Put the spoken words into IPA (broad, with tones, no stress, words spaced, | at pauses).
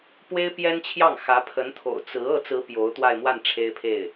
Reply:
pwe˥ɪ̯pjɛ˥nt͡ɕʰjɑ˥˩ŋ xä˧˥pʰə˧˥nt̪ʰo̰˨˩ʊ̯ t͡sɹ̩˧˥ ɤ˥˩t͡sɹ̩˧˥ pjo˧˥ʊ̯ t̪wa˥˧ɪ̯mwa˥˩n ʈ͡ʂʰe˥ɪ̯pʰe˥˩ɪ̯